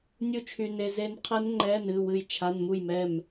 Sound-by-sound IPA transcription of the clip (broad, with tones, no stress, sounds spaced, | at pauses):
nʲ u˥˩ t͡ʃʰ y˧ n e˧ z e˦˥ n qʰ ɛ˦˥ n ŋ͡ǃ ɛ˧˥˧ n ɨ˩˧˩ w ɨ˥˩ j t͡ʃʰ a˧˥˧ n m u˥˩ j m ɛ˥˩ m